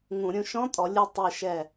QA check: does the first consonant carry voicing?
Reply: yes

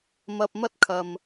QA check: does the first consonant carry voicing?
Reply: yes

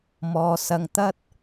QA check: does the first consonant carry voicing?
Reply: yes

